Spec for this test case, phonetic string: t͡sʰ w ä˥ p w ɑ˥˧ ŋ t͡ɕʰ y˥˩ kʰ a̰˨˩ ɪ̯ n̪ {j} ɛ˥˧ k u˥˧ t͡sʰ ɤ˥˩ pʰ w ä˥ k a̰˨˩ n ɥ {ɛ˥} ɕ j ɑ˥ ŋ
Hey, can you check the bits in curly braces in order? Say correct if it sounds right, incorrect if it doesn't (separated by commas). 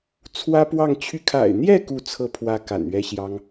correct, correct